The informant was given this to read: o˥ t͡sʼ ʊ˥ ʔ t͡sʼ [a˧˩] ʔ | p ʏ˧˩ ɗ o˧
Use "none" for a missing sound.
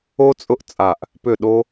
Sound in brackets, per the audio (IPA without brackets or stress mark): a˧˩